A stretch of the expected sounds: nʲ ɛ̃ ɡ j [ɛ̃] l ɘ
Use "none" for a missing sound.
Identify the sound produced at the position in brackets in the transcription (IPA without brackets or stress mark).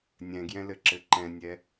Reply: ɛ̃